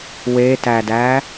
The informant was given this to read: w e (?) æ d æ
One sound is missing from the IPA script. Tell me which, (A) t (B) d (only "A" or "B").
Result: A